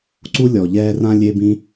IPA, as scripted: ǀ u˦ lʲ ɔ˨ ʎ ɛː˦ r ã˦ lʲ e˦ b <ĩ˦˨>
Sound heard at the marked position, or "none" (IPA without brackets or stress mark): ĩ˦